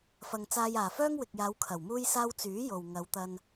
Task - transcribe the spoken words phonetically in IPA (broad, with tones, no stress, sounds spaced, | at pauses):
f ɐ˨ ŋ t͡s aː˧ j aː˨˩ f œː˥ ŋ w ɪ˨ k̚ j aː˨˧ w kʰ ɐ˨˩ w m uː˥ j s aː˥ w t͡s yː˨˥ j o˨ w ŋ ɐ˨˧ w t̪ ɐ˧ n